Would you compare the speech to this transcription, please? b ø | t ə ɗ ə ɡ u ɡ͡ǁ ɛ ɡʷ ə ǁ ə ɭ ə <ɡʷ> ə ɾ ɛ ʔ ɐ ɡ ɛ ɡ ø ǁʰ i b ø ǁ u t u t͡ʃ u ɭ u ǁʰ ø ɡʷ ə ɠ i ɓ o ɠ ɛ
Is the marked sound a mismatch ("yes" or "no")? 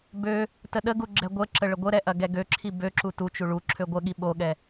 no